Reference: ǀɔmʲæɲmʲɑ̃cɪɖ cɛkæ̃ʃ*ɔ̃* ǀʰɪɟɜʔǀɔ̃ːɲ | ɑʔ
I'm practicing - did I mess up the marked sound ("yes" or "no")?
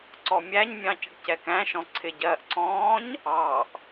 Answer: no